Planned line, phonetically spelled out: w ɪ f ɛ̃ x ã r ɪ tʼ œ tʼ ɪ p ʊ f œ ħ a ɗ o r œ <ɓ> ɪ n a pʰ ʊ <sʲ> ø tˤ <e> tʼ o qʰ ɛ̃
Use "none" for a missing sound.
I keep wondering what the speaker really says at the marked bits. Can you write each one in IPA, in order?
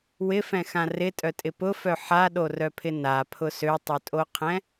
pʰ, s, ø

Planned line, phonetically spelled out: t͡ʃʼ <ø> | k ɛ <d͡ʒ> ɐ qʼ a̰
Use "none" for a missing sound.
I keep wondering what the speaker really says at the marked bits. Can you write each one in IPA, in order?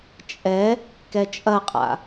ɛ, t͡ʃʼ

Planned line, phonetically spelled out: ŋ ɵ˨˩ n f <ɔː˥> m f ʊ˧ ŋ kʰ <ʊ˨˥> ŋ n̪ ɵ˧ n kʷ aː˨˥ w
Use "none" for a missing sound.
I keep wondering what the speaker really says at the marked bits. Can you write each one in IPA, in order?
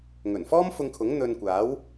ɔː˥, ʊ˨˥

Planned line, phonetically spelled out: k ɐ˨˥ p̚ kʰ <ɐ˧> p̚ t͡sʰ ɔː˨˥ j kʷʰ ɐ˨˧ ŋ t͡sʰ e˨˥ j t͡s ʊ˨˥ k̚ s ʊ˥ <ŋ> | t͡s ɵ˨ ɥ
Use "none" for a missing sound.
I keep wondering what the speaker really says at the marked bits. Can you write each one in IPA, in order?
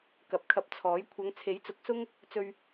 ɐ˧, ŋ

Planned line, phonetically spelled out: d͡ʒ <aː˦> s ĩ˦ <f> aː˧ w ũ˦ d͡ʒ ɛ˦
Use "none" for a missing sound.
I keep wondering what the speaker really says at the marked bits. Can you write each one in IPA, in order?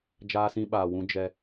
aː˦, ɓ

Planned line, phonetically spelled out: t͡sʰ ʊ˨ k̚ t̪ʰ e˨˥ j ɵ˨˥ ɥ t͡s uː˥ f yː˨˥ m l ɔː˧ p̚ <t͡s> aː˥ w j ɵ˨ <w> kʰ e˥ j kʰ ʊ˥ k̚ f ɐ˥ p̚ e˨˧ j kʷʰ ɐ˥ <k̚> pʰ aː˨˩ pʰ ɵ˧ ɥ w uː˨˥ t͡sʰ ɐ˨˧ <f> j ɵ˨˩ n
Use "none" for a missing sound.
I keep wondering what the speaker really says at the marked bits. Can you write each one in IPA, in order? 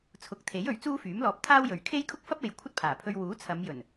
t̪ʰ, ɥ, t̚, m

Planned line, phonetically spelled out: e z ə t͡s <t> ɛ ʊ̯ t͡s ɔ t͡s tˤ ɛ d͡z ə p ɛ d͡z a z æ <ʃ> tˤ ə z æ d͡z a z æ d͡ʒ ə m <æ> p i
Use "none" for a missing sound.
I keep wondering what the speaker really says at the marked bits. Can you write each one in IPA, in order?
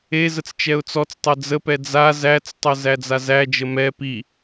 t͡ʃ, t͡s, ɛ

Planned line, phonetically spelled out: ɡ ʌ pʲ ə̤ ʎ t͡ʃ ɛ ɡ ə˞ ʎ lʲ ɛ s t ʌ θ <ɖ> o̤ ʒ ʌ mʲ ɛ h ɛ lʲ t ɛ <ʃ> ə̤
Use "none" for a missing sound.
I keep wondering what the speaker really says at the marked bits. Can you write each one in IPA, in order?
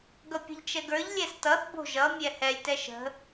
b, ʃ

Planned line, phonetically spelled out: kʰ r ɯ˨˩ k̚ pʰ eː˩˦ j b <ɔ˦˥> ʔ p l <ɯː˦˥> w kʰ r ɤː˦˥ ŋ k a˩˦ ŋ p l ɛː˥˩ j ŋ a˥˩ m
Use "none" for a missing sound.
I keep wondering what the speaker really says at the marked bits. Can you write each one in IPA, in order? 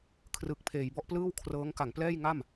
ɔ˦˥, ɯː˥˩

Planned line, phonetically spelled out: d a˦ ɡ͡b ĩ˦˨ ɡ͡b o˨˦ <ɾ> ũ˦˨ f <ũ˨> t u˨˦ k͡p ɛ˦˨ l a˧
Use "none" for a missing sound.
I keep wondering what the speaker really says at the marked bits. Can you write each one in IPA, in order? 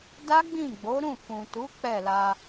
ɾ, ũ˨

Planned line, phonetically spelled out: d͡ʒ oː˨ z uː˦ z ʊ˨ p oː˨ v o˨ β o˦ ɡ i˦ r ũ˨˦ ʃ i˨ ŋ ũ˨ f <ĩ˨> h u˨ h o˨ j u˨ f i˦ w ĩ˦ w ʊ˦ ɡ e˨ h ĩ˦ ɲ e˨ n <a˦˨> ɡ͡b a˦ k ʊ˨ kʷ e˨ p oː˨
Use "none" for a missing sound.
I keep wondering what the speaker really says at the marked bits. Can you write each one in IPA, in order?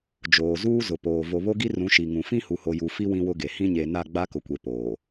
ĩ˦, a˦˨

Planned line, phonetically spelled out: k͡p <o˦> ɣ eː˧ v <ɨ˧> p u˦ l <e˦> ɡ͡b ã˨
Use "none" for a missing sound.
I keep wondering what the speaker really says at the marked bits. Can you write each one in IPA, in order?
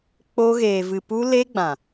o˦, ɨ˧, e˦

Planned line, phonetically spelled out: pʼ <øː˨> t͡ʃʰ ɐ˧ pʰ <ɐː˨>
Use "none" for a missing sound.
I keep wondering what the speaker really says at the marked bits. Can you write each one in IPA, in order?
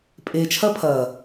eː˨, ɐː˨

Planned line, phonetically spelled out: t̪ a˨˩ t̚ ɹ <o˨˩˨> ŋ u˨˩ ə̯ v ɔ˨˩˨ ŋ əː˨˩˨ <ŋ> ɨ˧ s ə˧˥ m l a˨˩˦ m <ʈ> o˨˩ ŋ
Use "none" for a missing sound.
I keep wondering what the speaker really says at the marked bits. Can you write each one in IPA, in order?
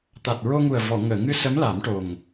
o˧, ŋ, ʈ

